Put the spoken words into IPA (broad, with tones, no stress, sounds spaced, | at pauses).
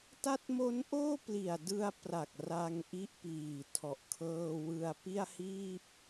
t a˦˥ t̚ m o˦˥ n ʔ oː˥˩ p l i˨˩ a̯ d ɯ˧ a̯ p r a˨˩ k̚ r a˧ ŋ ʔ i˦˥ ʔ p iː˨˩ tʰ ɔ˨˩ ʔ kʰ ɤː˧ w ɯ˧ a̯ p i˥˩ a̯ h iː˥˩ p̚